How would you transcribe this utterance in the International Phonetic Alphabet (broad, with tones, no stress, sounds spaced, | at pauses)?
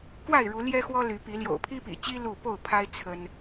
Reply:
k w a˥˨ ɪ̯ ɻ u˨˦ l j ɛ˦ x w ɔ˦ l y˨˦ p i˨˦ l j o̰˨˩ ʊ̯ pʰ i˦ p ḭ˨˩ t͡ɕ i˦ l u˥˨ p o˥˨ ʊ̯ pʰ a˦ ɪ̯ t͡sʰ ə˦ n